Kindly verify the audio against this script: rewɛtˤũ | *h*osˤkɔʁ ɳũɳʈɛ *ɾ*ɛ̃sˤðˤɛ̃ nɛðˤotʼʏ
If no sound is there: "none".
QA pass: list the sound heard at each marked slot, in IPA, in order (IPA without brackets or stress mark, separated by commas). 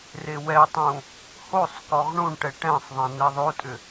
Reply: h, ʈ